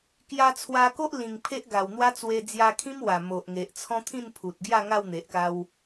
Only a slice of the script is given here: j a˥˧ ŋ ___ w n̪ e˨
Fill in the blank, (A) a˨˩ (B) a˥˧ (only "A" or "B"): B